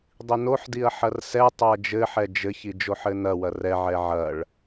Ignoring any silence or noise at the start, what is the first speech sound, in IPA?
dˤ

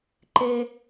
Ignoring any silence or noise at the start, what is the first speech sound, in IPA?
ǃ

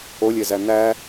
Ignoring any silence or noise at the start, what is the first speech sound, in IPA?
o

